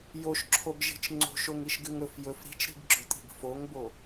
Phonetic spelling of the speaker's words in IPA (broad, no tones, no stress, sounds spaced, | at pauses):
j o ʃ ǁʰ o ɡ ʒ i̤ t͡ʃ ŋ͡ǀ o̤ ʃ o ŋ i ʃ ɡ ʉ ŋ ɵ f j ɵ f ɾ i̤ t͡ʃ ɾ i̤ ɡ ɡ͡ǁ ɵ tʼ i̤ ɡ f o ŋ b o